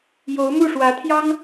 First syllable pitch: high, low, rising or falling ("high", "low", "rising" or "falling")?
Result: rising